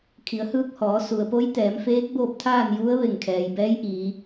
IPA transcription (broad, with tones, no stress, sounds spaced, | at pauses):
kʰ i˩˧ ə̯ h ɯː˧ k̚ h ɔː˩˧ s u˩ ə̯ p o˧˥ j t̪ ɛː˩˧ m f eː˧˥ k̚ b oː˥˨ p̚ t̪ʰ aː˥˨ n j u˧˥ ə̯ ʋ e˧˩ ŋ kʰ ɛː˩ j b ɛː˧˥ j ʔ iː˩˧